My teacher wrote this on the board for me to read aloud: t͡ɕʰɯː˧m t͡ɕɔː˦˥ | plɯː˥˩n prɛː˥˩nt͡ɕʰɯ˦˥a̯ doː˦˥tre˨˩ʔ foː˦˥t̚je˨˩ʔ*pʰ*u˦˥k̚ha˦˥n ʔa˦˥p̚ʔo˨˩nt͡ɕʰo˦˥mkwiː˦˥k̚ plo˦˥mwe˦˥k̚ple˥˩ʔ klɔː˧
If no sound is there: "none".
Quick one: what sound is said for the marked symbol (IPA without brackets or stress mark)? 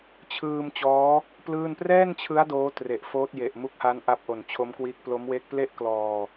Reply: m